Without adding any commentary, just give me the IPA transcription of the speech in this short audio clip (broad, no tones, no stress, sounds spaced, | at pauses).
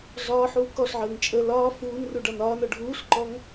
ɮ ɒː ħ uː k ɔ ɬ ʕ əː ŋ t͡ʃʼ ə l ɒː f uː n r u ɖ ɒ n ɒː n ɔ ɖʱ uː ɬ ǃ ɔ ŋ